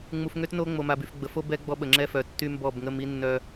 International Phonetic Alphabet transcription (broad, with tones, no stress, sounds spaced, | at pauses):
ŋ͡m u˨ f ŋ ø˦ t n o˦ ŋ͡m o˨ m a˨ b y˨ f ɡ͡b ə˨ f o˦ b ɛ˦ ɡ͡b ɔ˦ ɓ ə˨ ŋ͡ǁ ɛ˦ f œ˨ tː y˦ m b ɔ˦˨ b ŋ ə˦ m i˦ nː œ˦